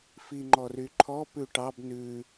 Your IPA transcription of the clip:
fiŋ͡ǃɔryǃʰɔ pʉʈɑb nʉ

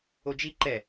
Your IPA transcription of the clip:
od͡ʒi ǃɛ

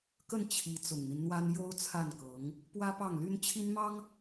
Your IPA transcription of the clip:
kə˥˩n t͡ɕʰi˧˥ t͡sʊ˨˩ŋn̪i˦nn̪wa˥n jo˥ʊ̯t͡sʰa˥˩nkɤ˧˥ŋ | pwä˥pɑ˥˩ŋly˥n t͡ɕʰi˥nmɑ˥ŋ

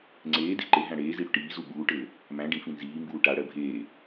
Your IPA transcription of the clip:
ŋ͡ǀeːde̤ ǃe ɦæ̃ɽeːzi ɽʏʈiːzu ɓuːʈɘː | mæ̃ ɖĩfĩ nziːmbuː ʈaɽɜ bʱeː

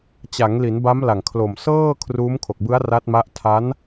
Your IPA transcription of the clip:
t͡ɕa˩˦ŋli˩˦n ba˦˥mla˨˩ŋkʰlo˨˩m sɤː˥˩kʰruː˦˥mkʰo˨˩k̚bɯ˦˥a̯ ra˦˥t̚ma˦˥ʔ tʰa˦˥n

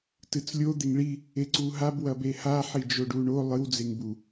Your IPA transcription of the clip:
tɨt͡slʲo d̪eŋɭi | eǀuɦab wɐbeha ħid͡ʒoɖuɳo lˠɨw d͡zeŋbu

